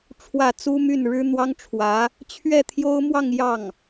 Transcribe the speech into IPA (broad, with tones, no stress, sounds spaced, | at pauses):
ʈ͡ʂʰ w ä˥˩ t͡s u˥ m y˥˩ n ɻ ɻ̩˥ n̪ w ɑ˥ ŋ ʈ͡ʂʰ w ä˧˥ | t͡ɕʰ ɥ ɛ˥˩ t̪ʰ j o˥ ʊ̯ m w ɑ˥˧ ŋ j ɑ˥˩ ŋ